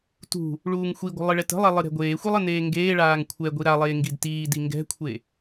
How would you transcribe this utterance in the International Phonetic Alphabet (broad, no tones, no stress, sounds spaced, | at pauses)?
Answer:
t ṳ | ɭ uː ŋ xʷ i ɡʷ ə̤ lˠ ɨ ɭ ɛ t ə̤ lˠ ɛ lˠ ɨ ɾ ɛ̤ ɡʷ eː xʷ i lˠ ə n eː ŋ ɡ eː ɭ aː ŋ kʷʰ ɛ ɡʷ i ɾ a lˠ eː ŋ ɡ i d t iː d i ŋ ɡ ɛ̤ kʷʰ e